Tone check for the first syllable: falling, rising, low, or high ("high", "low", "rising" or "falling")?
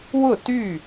falling